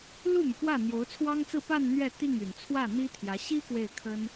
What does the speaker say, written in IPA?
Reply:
lu˥˩my˩pwä˥˩ n̪jo˧˥ʊ̯t͡sʰwɑ˥ŋt͡sɹ̩˥˧ pa˥˧n n̪ɥɛ˥˧t̪i˥˩ŋ y˨˩nt͡sʰwä˥˩n̪i˥t̪ʰjä˧˥ ɕi˥ kwe˥˩ɪ̯kʰə˥n

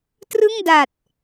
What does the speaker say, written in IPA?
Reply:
trɯ˥˩ŋda˨˩t̚

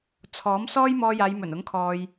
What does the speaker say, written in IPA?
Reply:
t͡sʰɔː˨˥m sɔː˥jmɔː˧jaː˨˧jmɵ˨˩n ʊ˨˥ŋkʰɔː˨j

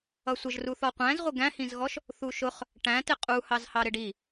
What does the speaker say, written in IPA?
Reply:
ʌsʷəʒruθɔ qʷæ̃zʁʷɪ ɡæ̃hĩzɣɔʃ | θuʃʊχ | ʈæ̃tɪ qʼuhɑzhɑ ɾɪɖi

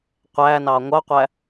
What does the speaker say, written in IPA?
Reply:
qʷæːnɑː ŋʷɑqʷæ

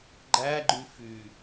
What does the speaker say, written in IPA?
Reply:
ɡ͡ǃæɡ͡ǃy fy

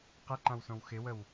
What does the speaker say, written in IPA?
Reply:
qɪǃãwsõw xɪwəw

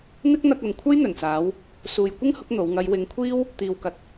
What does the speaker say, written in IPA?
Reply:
n̪ɪ˥k̚n̪ɐ˧k̚ɐ˨n kʷʰɐ˥jn̪ɵ˨˩nt͡saː˨˧w | suː˨jkʷɪ˥ŋhʊ˨˥k̚ n̪o˨˥w ŋɐ˨˧jwɪ˨˥ŋkʷʰiː˥w | t̪iː˨wkɐ˨t̚

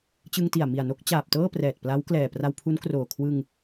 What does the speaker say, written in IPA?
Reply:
t͡ɕɯ˧ŋti˨˩a̯ mi˨˩a̯no˦˥k̚t͡ɕaː˨˩p̚tɤː˥˩ prɛː˨˩t̚pla˦˥w klɛː˨˩pra˧wpʰu˦˥nkroː˨˩ kʰwɯ˧ŋ

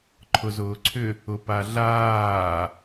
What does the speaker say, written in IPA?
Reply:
ǃʰʊzʊːǀʰʏ | ʊpaɮaː

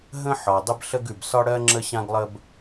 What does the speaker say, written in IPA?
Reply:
ɦə̃˥ ħɒ˩ dˤə˥bɬə˥ɡʉ˩b sɒ˥ɽɜ˥ ŋ͡ǁə˥ɕã˥ɡlˠə˥b

